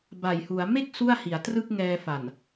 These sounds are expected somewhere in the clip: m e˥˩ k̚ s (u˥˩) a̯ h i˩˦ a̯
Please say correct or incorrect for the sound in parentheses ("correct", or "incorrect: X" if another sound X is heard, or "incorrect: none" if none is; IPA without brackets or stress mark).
correct